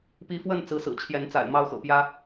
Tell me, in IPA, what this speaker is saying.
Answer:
p i˨˦ f w ə˥˨ n t͡s ɹ̩˨˦ s ɹ̩˨˩ t͡ɕʰ j ɛ˨˦ n t͡s a̰˨˩ ɪ̯ m ɑ˥˨ ʊ̯ x ɤ̰˨˩ p j ä˦

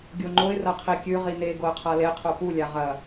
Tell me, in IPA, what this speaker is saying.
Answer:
ɡʲ o ŋ͡ǃ o ɪ̯ r ɐ qʰ i kʲ ʉ ʁ i n e ɡ o ə̯ qʰ a l e qʰ o p u lʲ a ʁ ɐ

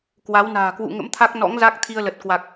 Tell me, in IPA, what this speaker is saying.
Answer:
k w a˨˦ w n a̤ː˨˩ k w ṵ˧˨ ŋ ə̰˧˥ m t̪ʰ a˦˥ k̚ n ɔ̰˧˥ ŋ z a˦˥ k̚ t̪ʰ i˧ ə̯ l ə˨˩ t̚ k w a˨˩ k̚

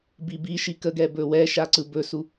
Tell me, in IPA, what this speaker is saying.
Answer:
b i b i ʃ i k ə ɡ ɛ b ɵ w ɛ ʃ a ǀ ɯ b ɵ s u

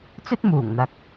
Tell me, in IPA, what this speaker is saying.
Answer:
t͡s ɵ˥ t̚ m uː˨˩ ŋ n̪ ɐ˨ k̚

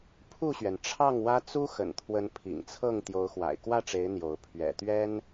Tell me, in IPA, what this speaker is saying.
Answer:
pʰ u˥˨ ɕ ɥ ɛ˩ n ʈ͡ʂʰ ɑ˥˨ ŋ w ä˦ t͡s u˦ x ə̰˨˩ n t̪ʰ w ə˨˦ n pʰ ḭ˨˩ ŋ t͡sʰ ɤ˥˨ ŋ t̪ j o˨˦ ʊ̯ x w a̰˨˩ ɪ̯ k w ä˥˨ ʈ͡ʂ e˨˦ ɪ̯ n̪ j o˨˦ ʊ̯ pʰ ɥ ɛ̰˨˩ t̪ ɥ ɛ˦ n

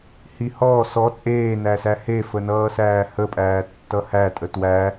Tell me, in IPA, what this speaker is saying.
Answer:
h i h ɔː s ɔ t͡sʼ eː n æ s æ h e f ə n ʌː s æː h ə pʼ æː tː ʌ h æ tʼ ə t w æ

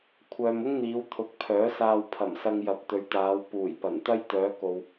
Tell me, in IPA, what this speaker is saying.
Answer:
kʷʰ œː˨ m ʊ˥ ŋ n̪ iː˨˧ w t̪ʰ ʊ˨˥ k̚ pʰ œː˨˥ s aː˧ w pʰ ɐ˨˩ m s ɐ˧ ŋ j ɐ˨˥ p̚ t̪ ɵ˨˧ ɥ t̪ aː˨˧ w p uː˨˩ j p ɐ˨˩ n t̪ ɐ˥ j t̪ œː˨˧ k o˨ w

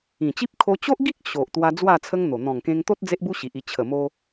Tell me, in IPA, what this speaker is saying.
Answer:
ĩ˨˩ t͡ɕ i˦ p̚ kʰ o˧ t͡ɕ o˦ ʔ ɡ i˦ k̚ ɕ o˨ ʔ t̪ w a˧ d͡z w a˥˧ t͡sʰ ə˦ ŋ n̪ o˨˩ n̪ ɔ̃˨˩ ŋ k ẽ˧ ŋ t̪ o˦ t̚ d͡z e˦ ʔ b u˦ ɕ i˨ ʔ i˧ t͡ɕʰ ə˨˩ m o˧

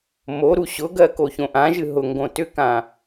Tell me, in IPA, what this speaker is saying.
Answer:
m o ɾ u ɕ ʊ ɡ ɜ k o ç õ ʔ ã ʒ ɨ ɦ ʊ ŋ ɡ õ t ʏ k ã

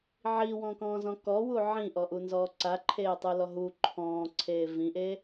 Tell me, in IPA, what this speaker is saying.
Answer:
ʕ i w ɔ̃ k ɔ̃ː z ɔ̃ k ɔ w u ʕ ĩ ʔ ɔ ʔ u n z ɔː ǀ a ǃʰ eː tˤ u l ɔ ɦ u ǃʰ ɔ̃ː ǀʰ eː v ĩ ʔ eː

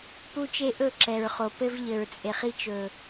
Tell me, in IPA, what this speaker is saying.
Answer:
p u˦ t͡ʃ e˦ ʔ ɵ˦˨ ǁ ɛ˨ ɹ χ o˨ p ɘ˦ v ʎ ɘ˨ ɹ t͡sʼ e˨ χ i˦ t͡ʃ ɵ˨

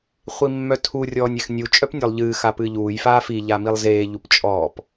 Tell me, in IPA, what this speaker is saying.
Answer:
χʷ i mː œ tʰ u rʲ ɔː nʲ e x nʲ u t͡ʃʼ œ p nʲ ɔ lˠ ʎ ɨː x a p ɨː ʎ uː j f aː f i ʎ a m i lˠ z eː ʎ u p t͡ʃʼ ɔː p

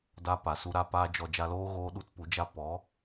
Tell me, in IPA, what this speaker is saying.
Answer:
d a˦ p a˨ s u˧ ɾ a˧ p aː˦ d͡ʒ ɔ˧ d͡ʒ a˧ l oː˦ ɣ oː˦ ɗ u˦ t p u˨˦ d͡ʒ a˦ p ɔ˨˦

